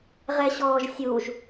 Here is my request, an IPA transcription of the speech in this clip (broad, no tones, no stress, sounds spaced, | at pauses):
ʁ ɛ ɕ ɔː ʒ sʲ u ʒ